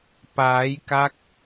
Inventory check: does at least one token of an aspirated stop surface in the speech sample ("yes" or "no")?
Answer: no